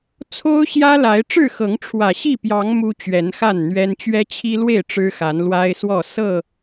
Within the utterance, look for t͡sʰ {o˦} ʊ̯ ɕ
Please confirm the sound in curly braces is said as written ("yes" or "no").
yes